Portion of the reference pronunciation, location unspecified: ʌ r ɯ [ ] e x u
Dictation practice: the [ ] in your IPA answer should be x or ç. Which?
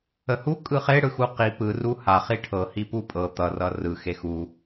x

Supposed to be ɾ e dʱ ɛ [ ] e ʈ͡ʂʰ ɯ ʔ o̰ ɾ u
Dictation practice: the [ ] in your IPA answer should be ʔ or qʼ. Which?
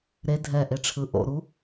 ʔ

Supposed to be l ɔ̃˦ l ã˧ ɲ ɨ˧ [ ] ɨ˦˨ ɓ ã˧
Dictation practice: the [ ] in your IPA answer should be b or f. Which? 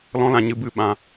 b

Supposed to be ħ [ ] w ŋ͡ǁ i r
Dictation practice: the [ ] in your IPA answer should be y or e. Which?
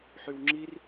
y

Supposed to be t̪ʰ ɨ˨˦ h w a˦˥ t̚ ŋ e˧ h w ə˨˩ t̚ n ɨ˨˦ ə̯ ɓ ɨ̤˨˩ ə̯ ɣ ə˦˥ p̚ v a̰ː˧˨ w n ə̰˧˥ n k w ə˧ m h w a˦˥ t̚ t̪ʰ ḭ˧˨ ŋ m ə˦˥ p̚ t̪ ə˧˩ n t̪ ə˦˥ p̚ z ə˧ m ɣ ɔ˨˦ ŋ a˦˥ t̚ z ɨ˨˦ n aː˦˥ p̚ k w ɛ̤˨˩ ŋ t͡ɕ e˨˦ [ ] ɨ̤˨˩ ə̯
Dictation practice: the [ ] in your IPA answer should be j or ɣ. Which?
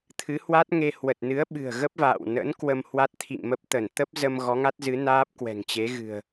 ɣ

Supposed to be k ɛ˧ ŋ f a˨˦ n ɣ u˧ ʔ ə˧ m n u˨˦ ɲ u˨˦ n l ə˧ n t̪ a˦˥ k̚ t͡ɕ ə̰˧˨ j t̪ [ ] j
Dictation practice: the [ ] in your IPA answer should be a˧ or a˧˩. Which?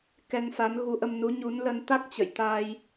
a˧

